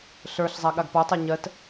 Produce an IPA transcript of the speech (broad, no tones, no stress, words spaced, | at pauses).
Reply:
ɬə˞ɬzˤa ɠaɡpɔtˤɜ ɲɜt